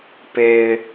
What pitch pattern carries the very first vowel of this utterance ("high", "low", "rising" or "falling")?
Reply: low